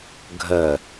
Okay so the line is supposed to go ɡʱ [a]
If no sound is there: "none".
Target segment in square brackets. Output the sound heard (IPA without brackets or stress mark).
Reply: ə